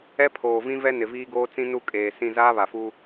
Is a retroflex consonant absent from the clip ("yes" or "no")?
yes